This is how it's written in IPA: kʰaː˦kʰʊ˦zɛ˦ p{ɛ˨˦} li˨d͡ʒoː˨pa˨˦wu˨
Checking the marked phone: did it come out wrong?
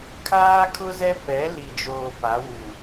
no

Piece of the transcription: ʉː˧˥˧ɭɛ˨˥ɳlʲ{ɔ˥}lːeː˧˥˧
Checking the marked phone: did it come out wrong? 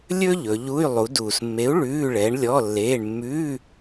yes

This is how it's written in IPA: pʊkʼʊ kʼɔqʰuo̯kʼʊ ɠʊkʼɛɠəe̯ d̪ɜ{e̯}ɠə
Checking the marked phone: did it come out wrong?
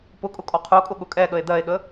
no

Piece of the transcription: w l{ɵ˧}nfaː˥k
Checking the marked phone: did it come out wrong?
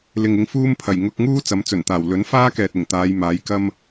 yes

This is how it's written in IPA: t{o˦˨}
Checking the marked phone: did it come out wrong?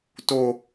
yes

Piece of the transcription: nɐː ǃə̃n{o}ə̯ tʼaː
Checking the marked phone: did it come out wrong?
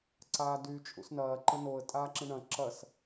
no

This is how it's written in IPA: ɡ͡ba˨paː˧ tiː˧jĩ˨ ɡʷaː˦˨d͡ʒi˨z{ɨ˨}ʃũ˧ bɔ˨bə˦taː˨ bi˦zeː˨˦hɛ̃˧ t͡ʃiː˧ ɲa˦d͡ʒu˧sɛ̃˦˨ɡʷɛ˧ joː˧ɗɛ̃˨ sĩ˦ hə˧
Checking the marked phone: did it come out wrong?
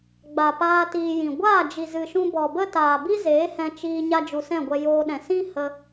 no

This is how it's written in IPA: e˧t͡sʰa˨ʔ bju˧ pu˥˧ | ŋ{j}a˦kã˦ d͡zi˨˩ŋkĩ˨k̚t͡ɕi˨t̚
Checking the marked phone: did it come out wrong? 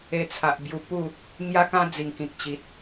no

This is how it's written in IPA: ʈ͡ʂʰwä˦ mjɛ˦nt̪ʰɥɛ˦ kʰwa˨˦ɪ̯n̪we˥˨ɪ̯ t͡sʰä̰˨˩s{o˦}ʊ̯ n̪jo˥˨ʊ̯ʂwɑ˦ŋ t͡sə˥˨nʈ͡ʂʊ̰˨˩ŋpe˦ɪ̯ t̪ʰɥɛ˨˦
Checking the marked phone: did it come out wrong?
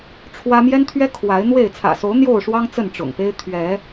yes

